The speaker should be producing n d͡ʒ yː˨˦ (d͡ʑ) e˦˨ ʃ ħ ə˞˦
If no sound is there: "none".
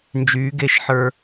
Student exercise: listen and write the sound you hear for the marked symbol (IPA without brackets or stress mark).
ɡ